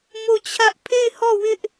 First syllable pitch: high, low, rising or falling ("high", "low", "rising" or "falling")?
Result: falling